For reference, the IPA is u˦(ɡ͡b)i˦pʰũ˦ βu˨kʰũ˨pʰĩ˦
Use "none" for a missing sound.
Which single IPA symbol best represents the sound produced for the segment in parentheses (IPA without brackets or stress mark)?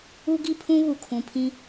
ɡ